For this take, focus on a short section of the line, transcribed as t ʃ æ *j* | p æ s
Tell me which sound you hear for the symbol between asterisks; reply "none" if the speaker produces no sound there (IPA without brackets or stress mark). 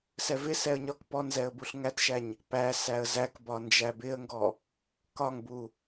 ɲ